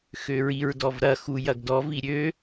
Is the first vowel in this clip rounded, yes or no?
yes